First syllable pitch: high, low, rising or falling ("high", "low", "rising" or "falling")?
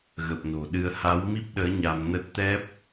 low